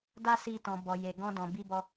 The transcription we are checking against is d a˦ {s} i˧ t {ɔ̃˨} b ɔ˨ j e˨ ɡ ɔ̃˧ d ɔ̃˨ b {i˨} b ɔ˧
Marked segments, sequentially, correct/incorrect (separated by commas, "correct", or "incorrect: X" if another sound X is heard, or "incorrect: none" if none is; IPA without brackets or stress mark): correct, correct, incorrect: i˧